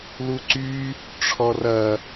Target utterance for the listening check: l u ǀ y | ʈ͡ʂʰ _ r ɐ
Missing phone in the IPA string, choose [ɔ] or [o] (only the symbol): ɔ